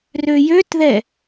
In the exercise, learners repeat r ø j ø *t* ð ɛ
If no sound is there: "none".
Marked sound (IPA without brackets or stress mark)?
t